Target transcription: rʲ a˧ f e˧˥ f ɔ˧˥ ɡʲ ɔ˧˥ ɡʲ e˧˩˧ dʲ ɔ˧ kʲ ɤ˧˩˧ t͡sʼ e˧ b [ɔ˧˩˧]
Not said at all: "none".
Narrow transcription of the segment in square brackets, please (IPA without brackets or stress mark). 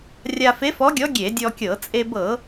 ɤ˧˩˧